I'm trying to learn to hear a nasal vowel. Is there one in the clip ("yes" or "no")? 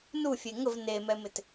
no